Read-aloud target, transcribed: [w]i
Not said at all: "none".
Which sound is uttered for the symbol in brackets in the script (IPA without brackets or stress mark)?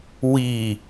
w